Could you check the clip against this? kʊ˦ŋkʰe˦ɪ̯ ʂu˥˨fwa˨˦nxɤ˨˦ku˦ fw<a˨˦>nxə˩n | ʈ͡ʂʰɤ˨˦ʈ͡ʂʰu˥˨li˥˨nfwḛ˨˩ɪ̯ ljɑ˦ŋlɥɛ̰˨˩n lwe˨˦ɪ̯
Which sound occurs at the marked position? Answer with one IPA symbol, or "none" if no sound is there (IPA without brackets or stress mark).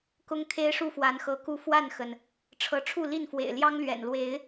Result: a˥˨